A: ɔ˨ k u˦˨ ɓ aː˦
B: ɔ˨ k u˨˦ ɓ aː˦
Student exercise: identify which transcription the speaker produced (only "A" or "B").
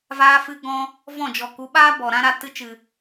B